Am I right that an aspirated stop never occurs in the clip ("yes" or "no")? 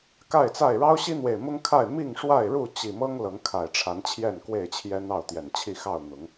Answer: no